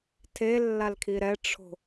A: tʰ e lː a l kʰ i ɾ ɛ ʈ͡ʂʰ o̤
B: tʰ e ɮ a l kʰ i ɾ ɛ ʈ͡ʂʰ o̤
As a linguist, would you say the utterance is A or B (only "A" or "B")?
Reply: A